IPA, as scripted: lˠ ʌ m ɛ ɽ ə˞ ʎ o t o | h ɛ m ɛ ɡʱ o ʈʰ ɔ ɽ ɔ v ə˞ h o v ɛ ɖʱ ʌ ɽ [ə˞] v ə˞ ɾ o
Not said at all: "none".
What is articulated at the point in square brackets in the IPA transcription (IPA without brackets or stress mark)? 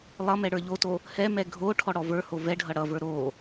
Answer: ʌ